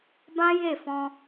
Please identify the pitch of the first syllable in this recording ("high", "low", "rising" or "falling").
high